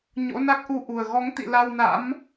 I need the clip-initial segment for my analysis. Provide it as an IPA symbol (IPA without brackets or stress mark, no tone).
ɲ